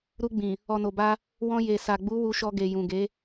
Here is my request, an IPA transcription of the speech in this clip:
ɾ u˧ ɡ͡b ĩ˨ | ɔ˨ n o˨ b a˧ | w ɔ̃˧ j e˨ s a˨ ɡ͡b u˨˦ w u˧ ʃ ɔ˧ ɡ e˨ j ũ˨ ɡ e˨˦

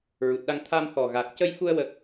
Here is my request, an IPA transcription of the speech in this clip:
ɹ u˨˩ t̚ ɗ a˧ ŋ t̪ʰ a˧ m x ɔ˨˩ ɣ a˨˩ k̚ c ə˧ j x u˧ ə̯ w ə˦˥ k̚

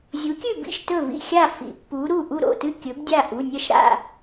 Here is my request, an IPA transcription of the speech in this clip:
zʲ u˨˥ kʲ ʉ˥˨ b ḭ˥˨ ʃ t ɵ˥˨ v ḭ˥˨ xʲ a˥˨ f ḭ˨˥ pː u˨˥ ɾ u˥˨ ʔ u˥˨ ɾ o̰˩˧˩ t ɨ˥˨ kʲ ɵ˨˥ b dʲ a˥˨ ʔ u˩˧˩ nʲ ɐ˥˨ ʃ ɾ a̰˥˨

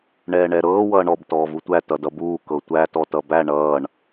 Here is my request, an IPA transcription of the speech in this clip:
ɳ ɛː ɳ ɛ ɾ ɤː w ʌː ɳ ɔ b t ɔː v u tʷ æ t ʌ d ʌ b uː k ɤ tʷ æ t ɔ t ʌ b æ ɳ ʌː ɳ

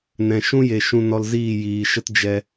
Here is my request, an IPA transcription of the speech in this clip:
n ɛ̃˨ ʃ ũ˦ j e˨ ʃ ũ˧ n ɔ˧ l z iː˦˨ j iː˨ ʃ ə˦ t d͡ʒ ɛ˧

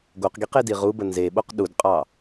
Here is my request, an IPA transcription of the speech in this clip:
ɡ o q ɡ i q e d i ʁ u b ə n z e ɓ o q ɗ u d qʼ ɑ

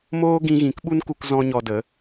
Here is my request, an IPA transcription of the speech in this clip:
m oː˦ ɡ ĩ˧ ɣ ĩ˨˦ k ɓ u˦ n k u˧ k z ɔ̃˦ ɲ ɔ˧ d ə˨˦

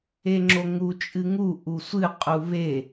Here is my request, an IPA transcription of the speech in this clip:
e ŋ͡ǁ o ŋ u t͡ʃʼ ɨ ŋ u ʔ u sʷ ɨ qʼ u β e

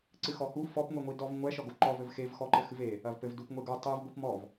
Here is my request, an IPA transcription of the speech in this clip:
ǀ ɨ x ɔ h u f ɔ p ŋʷ i ŋʷ i d ɔ v ŋʷ ɛ ʃ ɔ ɡ o ǃ ɔ v ɘ v x e v x ɔ ǃ ɘ x ɨ v e | ɐ v p ɘ v d u p ŋʷ e ɡ o tˤ ɨ v ɡʷ i p m ɔ v

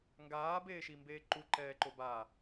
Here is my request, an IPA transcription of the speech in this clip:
ŋ ɡ aː b eː ʃ i m b eː ǃ u ǃ ɛː ǃ o b a

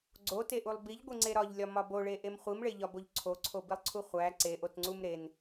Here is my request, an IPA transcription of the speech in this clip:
ɡ͡ǀ o t e ʔ u lˠ b i ʎ ɡʷ i ŋ͡ǀ e ɾ ɒ ʎ lʲ ɒ m ɒ b o ɭ e ʔ e m χʷ i m ɭ e ʎ ɒ b o ʎ ǀʰ o ǀʰ o b i lˠ ǀʰ u χʷ æ ǀ e ʔ o t ŋ͡ǀ u m ɾ e n

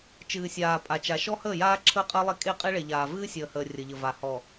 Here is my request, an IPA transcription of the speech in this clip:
t͡ʃ ɨː˨ sʲ aː˨ pʼ a˨ t͡ʃ a˨ ʃ ɔ˦ h əː˦˨ j aː˦ ǁʰ əː˦ qʼ əː˦ lˠ e˦ kʼ e˦˨ qʼ e˦ ɭ e˨ ʎ aː˨ v ɨː˦ sʲ əː˨ h əː˨ rʲ ə˨ ʎ ə˨ v a˨ h ɔ˨

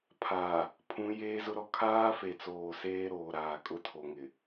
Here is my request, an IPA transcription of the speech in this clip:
pʰ aː˨ | pʰ ũ˨˦ j eː˦ z ʊ˦ ɾ ɔ˦ kʰ aː˦ f e˨ t͡s oː˨ s eː˦ ɾ oː˨ ɾ aː˨ kʼ ʊ˦ tʰ o˨ ŋ ɪ˨

